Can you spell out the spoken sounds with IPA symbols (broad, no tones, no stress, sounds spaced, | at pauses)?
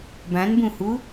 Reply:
b ã n b ũ h u